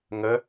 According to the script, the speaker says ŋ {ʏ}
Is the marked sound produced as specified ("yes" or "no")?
no